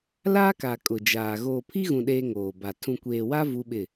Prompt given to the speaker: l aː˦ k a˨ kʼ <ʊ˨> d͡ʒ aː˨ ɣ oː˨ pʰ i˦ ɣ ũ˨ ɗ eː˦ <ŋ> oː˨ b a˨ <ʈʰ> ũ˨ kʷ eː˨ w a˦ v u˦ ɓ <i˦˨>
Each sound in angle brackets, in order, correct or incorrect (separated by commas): correct, correct, incorrect, incorrect